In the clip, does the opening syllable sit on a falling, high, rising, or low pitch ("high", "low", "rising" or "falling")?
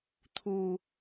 low